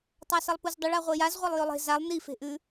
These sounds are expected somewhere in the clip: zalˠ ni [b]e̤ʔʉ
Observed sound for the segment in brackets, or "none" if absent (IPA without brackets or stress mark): f